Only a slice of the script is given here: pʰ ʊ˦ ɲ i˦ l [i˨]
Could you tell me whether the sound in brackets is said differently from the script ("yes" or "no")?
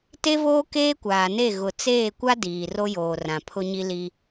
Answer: yes